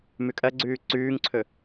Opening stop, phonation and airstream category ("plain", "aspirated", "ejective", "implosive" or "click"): ejective